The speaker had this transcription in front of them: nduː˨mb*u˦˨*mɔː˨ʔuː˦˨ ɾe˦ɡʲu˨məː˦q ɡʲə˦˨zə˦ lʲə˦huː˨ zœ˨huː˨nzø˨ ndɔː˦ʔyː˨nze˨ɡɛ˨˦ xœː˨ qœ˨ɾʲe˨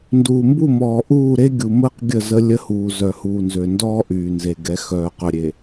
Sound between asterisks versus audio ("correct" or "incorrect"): correct